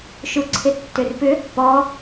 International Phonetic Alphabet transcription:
ʃuǀʰɪtːʏrpʏ | pɔ

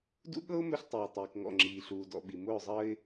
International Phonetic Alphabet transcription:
dṵ˦ɠɤ˦ʊ̯ mɵ˦ɬtˤiː˨tˤiː˨kŋɔ̰˦˨ ŋ͡ǁiː˨ɬuː˨dɔ̰˨ɓi˨ mʊː˦˨zˤəː˦ɪ̯

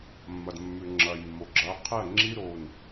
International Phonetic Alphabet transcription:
mːɐ˩dmːʉ˩ ŋ͡ǁɐː˩jmːo˩ɡ͡ǁɐː˨˦ qʰe˥˩ɐ̯ ŋ͡ǁi˦˥ ɾo˩˧˩n

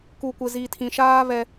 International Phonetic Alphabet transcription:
ku˨kʷɪ˨ zi˨tʰĩ˨ʃaː˦ βɛ˦

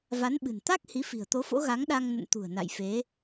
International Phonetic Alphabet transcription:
va˨˦nɓɨ̤˨˩n t̪a˦˥k̚ hi˨˦fi̤˨˩ə̯t̪o˨˦fo̰˧˥ ɣa˨˦ŋɗa˧ŋ nə̰˧˨nt̪ṳ˨˩ə̯ na̰˧˨jfe˨˦

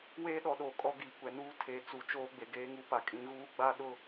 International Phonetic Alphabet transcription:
weː˦ɗɔ˨ɗoː˨ kʼɔ˦ɡiː˨kʷɛ˨ nuː˦ tʰe˨ t͡su˨t͡ʃoː˦ ɡ͡be˨ɡeː˦ŋu˦pa˨ kʼĩ˨ɣuː˦ ɡ͡ba˦ ɗʊ˦

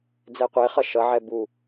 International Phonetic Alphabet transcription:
d͡zɛqʷeχʌ ʃʌʕɛ bu

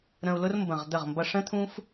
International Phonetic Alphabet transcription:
ɾə̃˧u̯lʊ˥rmbə̃˧˩ʁ d̪ə˧˩ʁmbʌ˧ʂə̃˥ t̪ʰũ˥f

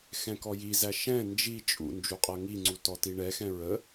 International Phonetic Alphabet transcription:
xɛ̃kɔjizæ ʃɛ̃ nd͡ʒi t͡ʃʼṵ nd͡ʒuqʼɤŋiŋ͡ǀu tɔtiɳɛxɛ̃ ɹə

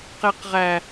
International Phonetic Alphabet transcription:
qeqʁæ

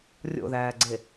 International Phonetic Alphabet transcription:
rʲo̰ðæːɡ͡ǀe

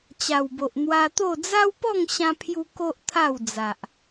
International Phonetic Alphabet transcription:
t͡ɕa˨˩wbo˨ʔ n̪wa˧t̪o˥˧ d͡za˦wpɔ˥˧ŋɕã˧pʰju˧ ko˦ʔt̪ʰa˥˧w d͡za˨ʔ

